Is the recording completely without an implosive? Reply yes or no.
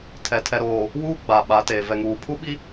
no